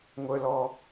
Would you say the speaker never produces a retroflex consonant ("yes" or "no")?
yes